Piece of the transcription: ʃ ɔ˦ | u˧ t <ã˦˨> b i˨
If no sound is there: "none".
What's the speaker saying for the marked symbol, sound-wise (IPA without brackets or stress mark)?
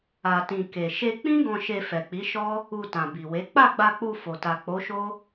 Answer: ã˨